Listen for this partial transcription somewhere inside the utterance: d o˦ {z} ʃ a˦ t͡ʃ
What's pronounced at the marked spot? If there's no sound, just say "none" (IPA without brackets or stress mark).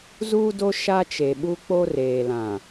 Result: none